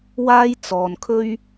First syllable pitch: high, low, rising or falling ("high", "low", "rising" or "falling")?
high